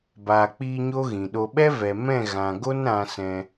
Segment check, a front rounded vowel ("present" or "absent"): absent